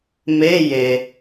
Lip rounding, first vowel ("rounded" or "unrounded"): unrounded